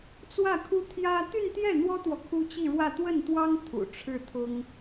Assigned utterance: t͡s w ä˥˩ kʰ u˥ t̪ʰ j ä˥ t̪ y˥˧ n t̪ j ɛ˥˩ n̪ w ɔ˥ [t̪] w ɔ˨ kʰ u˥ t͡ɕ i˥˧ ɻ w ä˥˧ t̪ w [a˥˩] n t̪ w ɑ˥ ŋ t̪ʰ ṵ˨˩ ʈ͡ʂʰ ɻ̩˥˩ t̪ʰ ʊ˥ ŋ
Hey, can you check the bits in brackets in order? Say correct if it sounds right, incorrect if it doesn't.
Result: correct, incorrect

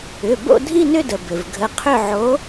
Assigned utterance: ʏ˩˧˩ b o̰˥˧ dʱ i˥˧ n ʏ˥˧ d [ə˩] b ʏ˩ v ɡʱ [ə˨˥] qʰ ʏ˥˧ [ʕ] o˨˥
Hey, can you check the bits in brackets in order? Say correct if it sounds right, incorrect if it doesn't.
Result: correct, correct, correct

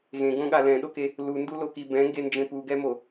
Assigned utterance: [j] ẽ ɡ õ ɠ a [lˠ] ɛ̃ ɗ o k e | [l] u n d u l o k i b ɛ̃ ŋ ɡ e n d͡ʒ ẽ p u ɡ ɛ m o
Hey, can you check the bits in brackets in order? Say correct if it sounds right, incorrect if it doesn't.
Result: incorrect, incorrect, correct

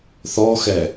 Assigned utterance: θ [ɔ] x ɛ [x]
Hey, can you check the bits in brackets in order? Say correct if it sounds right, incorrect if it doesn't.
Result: correct, incorrect

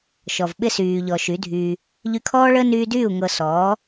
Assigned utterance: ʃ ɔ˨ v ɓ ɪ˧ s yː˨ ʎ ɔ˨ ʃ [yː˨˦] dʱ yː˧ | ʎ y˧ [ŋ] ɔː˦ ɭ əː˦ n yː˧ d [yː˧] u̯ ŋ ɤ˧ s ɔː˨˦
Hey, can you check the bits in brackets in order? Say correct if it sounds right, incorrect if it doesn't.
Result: incorrect, incorrect, incorrect

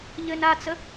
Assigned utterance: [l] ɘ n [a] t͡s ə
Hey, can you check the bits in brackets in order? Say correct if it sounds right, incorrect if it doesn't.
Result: incorrect, correct

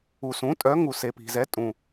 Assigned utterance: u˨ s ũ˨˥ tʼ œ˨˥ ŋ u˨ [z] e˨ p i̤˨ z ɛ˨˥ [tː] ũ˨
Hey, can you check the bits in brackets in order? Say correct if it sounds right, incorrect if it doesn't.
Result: incorrect, incorrect

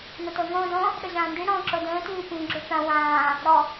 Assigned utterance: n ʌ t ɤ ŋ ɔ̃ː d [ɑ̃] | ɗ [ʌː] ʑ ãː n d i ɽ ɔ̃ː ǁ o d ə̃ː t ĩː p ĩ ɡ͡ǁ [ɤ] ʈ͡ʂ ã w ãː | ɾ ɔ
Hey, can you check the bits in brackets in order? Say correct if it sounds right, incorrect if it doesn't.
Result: incorrect, incorrect, incorrect

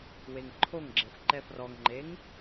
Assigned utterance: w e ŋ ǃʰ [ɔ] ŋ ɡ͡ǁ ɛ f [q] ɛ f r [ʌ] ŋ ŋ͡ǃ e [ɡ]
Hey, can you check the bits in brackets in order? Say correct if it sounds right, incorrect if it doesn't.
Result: incorrect, incorrect, incorrect, incorrect

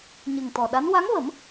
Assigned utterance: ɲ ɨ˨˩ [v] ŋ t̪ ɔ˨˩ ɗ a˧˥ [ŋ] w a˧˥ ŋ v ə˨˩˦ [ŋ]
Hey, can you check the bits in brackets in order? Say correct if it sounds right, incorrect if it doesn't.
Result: incorrect, incorrect, incorrect

